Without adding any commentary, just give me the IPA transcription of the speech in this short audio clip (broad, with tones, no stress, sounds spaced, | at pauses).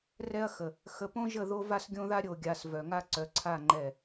r ɛ˦ ɐ̯ x ə˨ | x ə˨ p õ˦ ʒ ə˦˨ ð o˦ v a˦ s ɡʲ õ˦ ð a˦ ɾʲ o˨ ɡʲ a˨ s v œ˨ ŋ a˦ ǀ œ˨ ǀʰ a˦˨ ŋ͡ǃ ɛ˦˨